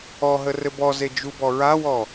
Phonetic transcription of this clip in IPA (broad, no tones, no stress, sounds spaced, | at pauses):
ɔ ɦ ə r ɘ b ɔ z e d͡ʒ u b ɔ ɹ a w ɔ